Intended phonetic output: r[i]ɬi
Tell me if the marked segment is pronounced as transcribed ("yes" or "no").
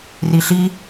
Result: yes